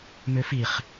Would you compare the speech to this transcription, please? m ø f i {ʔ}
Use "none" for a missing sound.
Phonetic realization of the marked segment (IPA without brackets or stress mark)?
χ